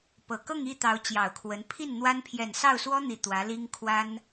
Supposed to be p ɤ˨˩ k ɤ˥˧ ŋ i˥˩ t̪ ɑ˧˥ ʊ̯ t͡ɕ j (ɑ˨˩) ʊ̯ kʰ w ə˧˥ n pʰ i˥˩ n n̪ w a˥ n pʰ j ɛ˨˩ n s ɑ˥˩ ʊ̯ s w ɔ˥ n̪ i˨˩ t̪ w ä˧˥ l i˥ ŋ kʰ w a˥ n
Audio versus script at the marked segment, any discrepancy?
no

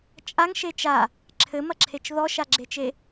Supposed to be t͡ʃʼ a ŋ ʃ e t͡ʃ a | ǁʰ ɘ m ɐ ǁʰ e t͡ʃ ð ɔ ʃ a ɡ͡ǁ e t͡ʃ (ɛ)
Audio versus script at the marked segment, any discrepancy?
yes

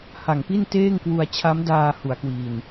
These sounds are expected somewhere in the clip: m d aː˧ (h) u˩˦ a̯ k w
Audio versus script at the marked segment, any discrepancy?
no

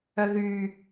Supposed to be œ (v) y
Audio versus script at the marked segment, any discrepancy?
yes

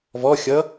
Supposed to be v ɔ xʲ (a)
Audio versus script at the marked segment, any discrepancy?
yes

